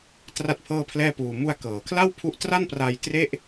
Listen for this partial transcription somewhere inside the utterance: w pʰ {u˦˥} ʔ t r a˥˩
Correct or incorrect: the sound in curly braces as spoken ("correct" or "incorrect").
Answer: correct